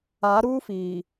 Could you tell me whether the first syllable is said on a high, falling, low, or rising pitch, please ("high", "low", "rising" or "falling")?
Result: rising